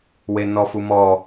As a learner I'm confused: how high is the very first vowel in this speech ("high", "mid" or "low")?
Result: mid